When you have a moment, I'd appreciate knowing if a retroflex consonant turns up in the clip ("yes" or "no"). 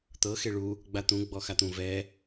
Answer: yes